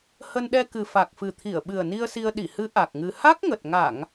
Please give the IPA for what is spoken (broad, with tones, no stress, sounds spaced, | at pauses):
h ə˧ n ɗ ɛ˧ k ɨ˨˩ f a˨˩ k̚ f ɨ˨˩ t̪ʰ i˧˩ ə̯ ɓ ɨ˨˩ ə̯ n i˧ ə̯ s i˧ ə̯ ɗ i˧˩ h ɨ˨˦ ʔ a˨˩ k̚ ŋ ɨ˧ h a˦˥ k̚ ŋ ə˨˩ t̚ ŋ a˧˩˨ ŋ